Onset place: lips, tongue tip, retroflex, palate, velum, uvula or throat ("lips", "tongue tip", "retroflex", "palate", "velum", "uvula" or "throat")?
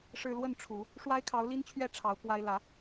retroflex